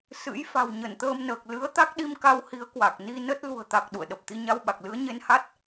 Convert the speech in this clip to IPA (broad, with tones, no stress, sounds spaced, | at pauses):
s ɨ̰˧˥ j f a̤˨˩ w ɲ ə˧˩ n t̪ əː˧ m n əː˨˩ k̚ l ɨ˨˦ ə̯ t̪ a˦˥ k̚ ɗ i˧ m k a˧ w h i˨˦ ə̯ k w a˨˩ k̚ n i˧ n ə˦˥ t̚ l ṳ˨˩ ə̯ t̪ a˨˩ k̚ ɗ ṵ˧˨ ə̯ ɗ ə˨˩ p̚ t̪ i˧ ɲ a˧ w ɓ a˨˩ k̚ l ɨ˨˦ ə̯ ɲ e˧ n h a˦˥ t̚